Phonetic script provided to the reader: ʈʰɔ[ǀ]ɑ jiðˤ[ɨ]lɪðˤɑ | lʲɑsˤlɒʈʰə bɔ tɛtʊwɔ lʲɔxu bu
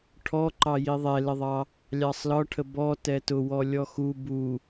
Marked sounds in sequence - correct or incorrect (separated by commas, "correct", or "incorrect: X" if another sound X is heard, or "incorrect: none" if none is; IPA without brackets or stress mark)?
incorrect: ǃ, incorrect: ɛ